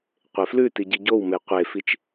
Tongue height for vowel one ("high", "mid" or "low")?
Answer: mid